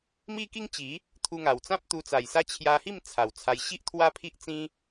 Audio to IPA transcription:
m i˦ k i˦ ŋ t͡ɕ i˨˦ | t̪ʰ u˧ ŋ a˨˩ w t͡s ã˦ p̚ t̪ u˧ t͡s a˨˩ j s a˦ t͡ɕʰ j a˧ h i˥˧ m t͡sʰ a˨˩ w t͡sʰ a˧ j ɕ i˦ ʔ t̪ʰ w a˦ pʰ i˦ ʔ t͡s ĩ˦

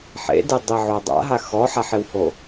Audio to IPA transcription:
ħ ḛ d e dˤ i ʕ o dˤ a̰ ɦ a x ɔ ħ a ħ ɪ w h o

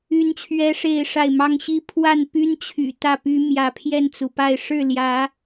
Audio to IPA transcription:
y˦ n t͡ɕʰ ɥ ɛ˦ ʂ e˥˨ ɪ̯ ʂ a˥˨ ɪ̯ m ɑ˦ ŋ ɕ i˦ pʰ w a˥˨ n p y˦ n t͡ɕʰ y̰˨˩ t̪ ä˥˨ p y˦ m j ä˨˦ pʰ j ɛ˥˨ n t͡s u˩ p a˥˨ ɪ̯ ʂ ɻ̩˥˨ l j ä˨˦

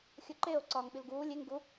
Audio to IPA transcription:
xʲ o ǃ e o̯ ǀ ɒː ŋ ɓ i l ɡ uː lʲ e ŋ ɡ u

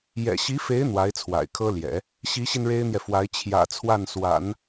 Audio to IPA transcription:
j ɛ̰˨˩ ɕ i˧˥ f e˧˥ ɪ̯ n̪ w a˧˥ ɪ̯ t͡sʰ w a̰˨˩ ɪ̯ kʰ ɤ˥ l j ɛ̰˨˩˦ | ɕ i˧˥ ɕ i˧ n ɻ e˥ ɪ̯ n̪ j ɛ˨ f w a˧˥ ɪ̯ t͡ɕʰ j ä̰˨˩ t͡sʰ w a˥˩ n s w a̰˨˩˦ n

